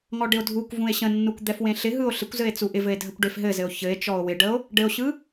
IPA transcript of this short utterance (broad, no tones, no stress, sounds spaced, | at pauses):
ŋ ɔ ɖ ɪ o̯ dʱ u kʷ v ũ e̯ ɕ ə̃ nː u kʷ d̪ ɛ f w ẽ ɬ ɪ ɦ ɯ o̯ ɬ ɪ kʷ z ɘ e̯ t͡s u ʔ ɪ v ɘ e̯ dʱ ə kʷ ɖ e f ɦ ɘ z ɘ o̯ ç ɘ e̯ t͡ʃ ɔ o̯ w ɪ ɖ ə o̯ | ɖ ɘ o̯ ɕ ɯ